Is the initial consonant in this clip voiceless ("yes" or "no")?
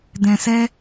no